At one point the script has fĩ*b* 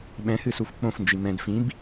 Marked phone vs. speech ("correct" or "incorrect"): correct